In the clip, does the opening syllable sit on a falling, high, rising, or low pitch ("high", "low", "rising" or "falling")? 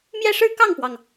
falling